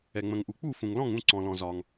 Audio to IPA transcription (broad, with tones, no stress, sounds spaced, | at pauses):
ɛ˩ ŋ͡m ə̃˩ ŋ ʔ u˩ k͡p u˥˩ f ũ˩ ŋ l ɔ̃˥˩ ŋ ũ˥˩ ǀ ɔ̃˩ l ɔ̃˩ z ɒ˩ ŋ